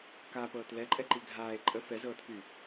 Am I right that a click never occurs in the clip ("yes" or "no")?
no